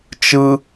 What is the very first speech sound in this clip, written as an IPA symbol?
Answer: t͡ʃ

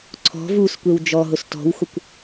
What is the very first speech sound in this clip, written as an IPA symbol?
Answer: ǀʰ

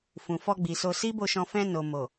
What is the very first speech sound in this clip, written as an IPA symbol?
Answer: f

